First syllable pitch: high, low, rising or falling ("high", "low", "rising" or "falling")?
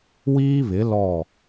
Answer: high